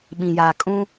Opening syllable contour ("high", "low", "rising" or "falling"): low